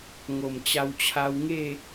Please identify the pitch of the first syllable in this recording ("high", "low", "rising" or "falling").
low